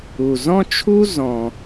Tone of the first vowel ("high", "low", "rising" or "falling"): low